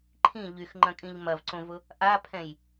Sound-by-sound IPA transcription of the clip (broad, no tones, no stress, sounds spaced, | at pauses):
ǃʰ ĩ ʎ y x ŋ͡ǃ ɐ̃ kʼ ĩ ʎ m ɐ v ǀ õ v ʊ | ʔ a pʰ ɛ̃ j